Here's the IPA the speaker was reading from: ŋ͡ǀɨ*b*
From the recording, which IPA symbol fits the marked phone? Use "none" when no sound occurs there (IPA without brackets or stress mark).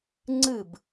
b